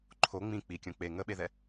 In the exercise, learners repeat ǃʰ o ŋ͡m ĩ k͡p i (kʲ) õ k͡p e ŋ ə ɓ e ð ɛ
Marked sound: correct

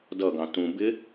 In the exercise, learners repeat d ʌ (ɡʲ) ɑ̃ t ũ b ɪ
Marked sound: incorrect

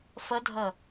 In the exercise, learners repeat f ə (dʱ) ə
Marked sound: correct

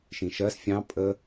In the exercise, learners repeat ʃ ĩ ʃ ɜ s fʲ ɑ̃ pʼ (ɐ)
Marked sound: incorrect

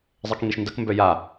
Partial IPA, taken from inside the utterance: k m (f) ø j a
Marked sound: incorrect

